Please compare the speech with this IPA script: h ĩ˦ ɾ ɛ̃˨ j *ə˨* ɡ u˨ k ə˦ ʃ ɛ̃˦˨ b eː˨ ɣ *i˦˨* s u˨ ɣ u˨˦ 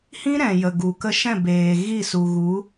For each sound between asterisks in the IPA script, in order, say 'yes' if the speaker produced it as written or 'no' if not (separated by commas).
yes, yes